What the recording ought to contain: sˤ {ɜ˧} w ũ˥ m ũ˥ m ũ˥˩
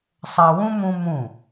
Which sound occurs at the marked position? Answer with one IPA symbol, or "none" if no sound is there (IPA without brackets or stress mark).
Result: ɜ˧